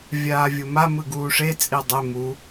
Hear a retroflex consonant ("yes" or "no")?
yes